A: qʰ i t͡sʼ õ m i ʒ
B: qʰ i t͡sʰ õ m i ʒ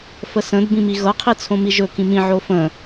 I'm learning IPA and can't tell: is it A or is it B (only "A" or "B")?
B